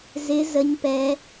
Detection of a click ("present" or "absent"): absent